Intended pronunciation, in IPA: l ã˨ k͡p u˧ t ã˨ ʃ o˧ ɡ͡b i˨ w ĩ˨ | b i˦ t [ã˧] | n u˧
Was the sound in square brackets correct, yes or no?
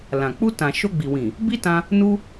yes